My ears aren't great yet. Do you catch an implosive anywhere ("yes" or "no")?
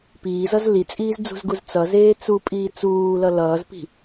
no